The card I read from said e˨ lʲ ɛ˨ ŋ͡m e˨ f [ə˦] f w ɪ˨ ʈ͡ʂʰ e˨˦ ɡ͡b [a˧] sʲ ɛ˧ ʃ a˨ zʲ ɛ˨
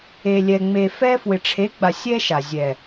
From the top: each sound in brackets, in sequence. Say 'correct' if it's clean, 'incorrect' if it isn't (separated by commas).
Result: incorrect, incorrect